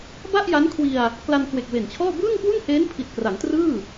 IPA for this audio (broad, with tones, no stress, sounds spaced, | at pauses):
b a˥˩ ʔ j a˦˥ n kʰ w i˧ a̯ | k l a˧ n k w e˨˩ k̚ w e˨˩ n t͡ɕʰ ɔː˥˩ b ɯː˥˩ ŋ k w u˥˩ n h eː˦˥ n pʰ i˨˩ t̚ k r a˩˦ ŋ t r ɯː˥˩